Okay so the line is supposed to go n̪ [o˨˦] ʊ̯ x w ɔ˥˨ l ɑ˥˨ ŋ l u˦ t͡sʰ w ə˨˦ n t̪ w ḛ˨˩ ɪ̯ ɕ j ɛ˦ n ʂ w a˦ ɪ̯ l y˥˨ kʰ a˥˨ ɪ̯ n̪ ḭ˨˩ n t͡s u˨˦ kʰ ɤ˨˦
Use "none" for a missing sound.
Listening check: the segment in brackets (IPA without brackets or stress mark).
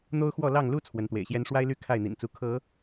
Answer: o˦